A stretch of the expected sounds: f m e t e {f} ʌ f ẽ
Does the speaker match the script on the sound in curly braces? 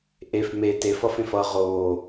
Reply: yes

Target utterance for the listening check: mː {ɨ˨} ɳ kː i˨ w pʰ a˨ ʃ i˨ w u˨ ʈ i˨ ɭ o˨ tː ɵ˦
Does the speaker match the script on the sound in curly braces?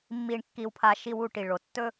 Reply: no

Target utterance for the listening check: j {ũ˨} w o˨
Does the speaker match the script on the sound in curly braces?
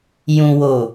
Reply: yes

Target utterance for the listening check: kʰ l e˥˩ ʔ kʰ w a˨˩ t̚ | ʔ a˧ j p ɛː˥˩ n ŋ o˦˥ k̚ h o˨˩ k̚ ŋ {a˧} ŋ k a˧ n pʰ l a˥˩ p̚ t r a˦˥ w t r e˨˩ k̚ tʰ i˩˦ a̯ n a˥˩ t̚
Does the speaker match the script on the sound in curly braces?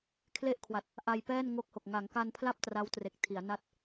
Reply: no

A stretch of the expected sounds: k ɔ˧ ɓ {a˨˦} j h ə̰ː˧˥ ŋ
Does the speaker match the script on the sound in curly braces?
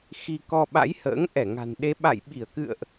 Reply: no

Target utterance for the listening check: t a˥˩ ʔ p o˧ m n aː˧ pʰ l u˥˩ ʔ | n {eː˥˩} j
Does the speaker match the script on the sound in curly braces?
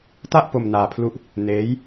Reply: no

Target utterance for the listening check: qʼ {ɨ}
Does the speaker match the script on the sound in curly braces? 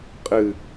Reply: yes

